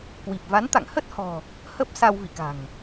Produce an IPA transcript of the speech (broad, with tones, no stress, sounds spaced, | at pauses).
k w i˨˩ p̚ v a˨˦ n t̪ a̰˧˨ ŋ h ə˦˥ t̚ h ɔ̤˨˩ | h ə˦˥ p̚ s a˧ w v ḭ˧˨ k a̤˨˩ ŋ